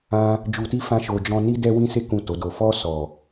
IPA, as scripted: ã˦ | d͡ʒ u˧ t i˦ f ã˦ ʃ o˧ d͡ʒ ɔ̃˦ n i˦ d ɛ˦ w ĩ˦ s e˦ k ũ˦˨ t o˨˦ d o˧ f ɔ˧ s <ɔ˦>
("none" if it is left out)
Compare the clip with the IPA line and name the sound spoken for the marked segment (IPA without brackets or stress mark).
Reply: ɔ˨